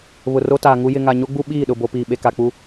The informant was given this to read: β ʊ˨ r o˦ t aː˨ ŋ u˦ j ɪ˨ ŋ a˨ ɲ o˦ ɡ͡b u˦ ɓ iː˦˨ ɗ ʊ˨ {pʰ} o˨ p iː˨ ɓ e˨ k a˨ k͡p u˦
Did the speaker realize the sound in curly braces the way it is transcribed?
no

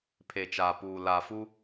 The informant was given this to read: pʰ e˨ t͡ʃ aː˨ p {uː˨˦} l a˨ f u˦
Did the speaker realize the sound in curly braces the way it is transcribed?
no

